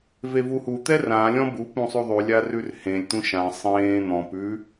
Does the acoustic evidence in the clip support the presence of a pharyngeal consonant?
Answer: no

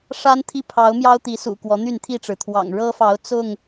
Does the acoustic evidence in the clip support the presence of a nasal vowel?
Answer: no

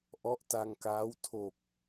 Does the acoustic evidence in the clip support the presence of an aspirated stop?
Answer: yes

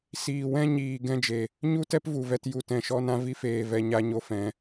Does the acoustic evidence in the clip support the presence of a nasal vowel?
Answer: yes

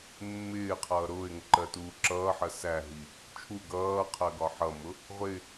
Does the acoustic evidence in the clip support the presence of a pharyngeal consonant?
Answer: yes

